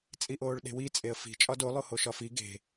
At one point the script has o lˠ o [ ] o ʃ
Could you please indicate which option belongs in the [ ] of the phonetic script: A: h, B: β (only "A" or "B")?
A